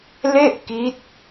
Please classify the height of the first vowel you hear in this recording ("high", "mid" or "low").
mid